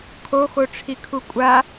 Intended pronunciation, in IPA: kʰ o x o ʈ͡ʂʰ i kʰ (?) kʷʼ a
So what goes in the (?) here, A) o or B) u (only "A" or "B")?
B